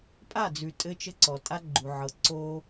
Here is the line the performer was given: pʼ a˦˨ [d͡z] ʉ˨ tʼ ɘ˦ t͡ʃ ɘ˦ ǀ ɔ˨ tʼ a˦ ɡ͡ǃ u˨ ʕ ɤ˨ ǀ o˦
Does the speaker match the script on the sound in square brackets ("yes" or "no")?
yes